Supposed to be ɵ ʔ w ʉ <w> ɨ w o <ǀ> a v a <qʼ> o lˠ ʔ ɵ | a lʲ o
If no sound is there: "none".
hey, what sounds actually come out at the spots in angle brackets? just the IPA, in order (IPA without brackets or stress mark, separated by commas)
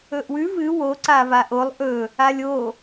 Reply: v, ǀ, ʔ